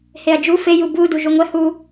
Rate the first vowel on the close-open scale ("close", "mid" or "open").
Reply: mid